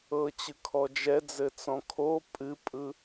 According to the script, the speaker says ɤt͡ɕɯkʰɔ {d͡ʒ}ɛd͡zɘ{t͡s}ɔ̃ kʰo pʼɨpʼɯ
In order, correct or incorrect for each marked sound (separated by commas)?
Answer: correct, correct